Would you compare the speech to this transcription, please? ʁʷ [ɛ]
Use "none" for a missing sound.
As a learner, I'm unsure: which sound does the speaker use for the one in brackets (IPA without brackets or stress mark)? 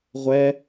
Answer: ɛ